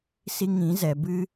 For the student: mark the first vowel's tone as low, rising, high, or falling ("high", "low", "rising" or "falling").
high